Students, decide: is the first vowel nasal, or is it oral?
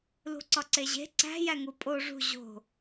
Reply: oral